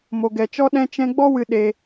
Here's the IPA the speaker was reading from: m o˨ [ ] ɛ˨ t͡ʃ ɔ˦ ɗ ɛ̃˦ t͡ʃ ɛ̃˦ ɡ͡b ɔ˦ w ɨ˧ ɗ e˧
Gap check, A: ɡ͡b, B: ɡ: B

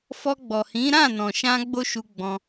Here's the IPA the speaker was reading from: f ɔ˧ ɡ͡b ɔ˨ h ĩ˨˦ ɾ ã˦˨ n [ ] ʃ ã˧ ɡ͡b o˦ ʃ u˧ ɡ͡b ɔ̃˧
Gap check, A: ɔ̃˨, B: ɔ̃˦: A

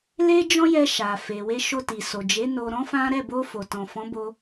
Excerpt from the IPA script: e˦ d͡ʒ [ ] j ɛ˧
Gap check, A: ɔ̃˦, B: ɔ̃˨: A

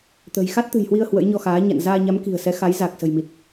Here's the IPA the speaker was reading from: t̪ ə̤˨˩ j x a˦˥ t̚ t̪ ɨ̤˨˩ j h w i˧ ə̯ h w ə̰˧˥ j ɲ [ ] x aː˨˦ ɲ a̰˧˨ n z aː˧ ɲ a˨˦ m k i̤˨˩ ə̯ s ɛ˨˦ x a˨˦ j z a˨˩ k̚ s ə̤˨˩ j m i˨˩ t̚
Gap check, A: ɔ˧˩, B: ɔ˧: B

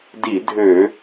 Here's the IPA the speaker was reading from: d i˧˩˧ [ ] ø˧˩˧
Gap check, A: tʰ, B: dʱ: B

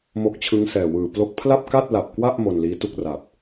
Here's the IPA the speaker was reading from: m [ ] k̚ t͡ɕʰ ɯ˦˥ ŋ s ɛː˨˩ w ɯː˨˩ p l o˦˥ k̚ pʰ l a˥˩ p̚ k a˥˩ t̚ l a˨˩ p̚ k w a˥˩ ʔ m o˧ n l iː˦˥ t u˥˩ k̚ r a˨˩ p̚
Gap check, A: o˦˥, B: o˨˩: A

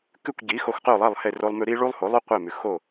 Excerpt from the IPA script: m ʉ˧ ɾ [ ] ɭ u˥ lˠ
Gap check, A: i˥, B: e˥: A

